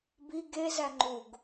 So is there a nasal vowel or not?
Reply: no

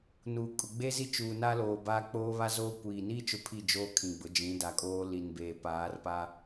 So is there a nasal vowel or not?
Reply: yes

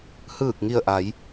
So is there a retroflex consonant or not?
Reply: no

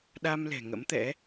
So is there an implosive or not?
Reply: yes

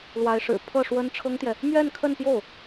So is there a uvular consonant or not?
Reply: no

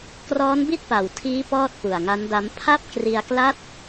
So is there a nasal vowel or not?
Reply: no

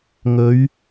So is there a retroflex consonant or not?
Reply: no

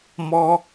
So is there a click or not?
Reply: no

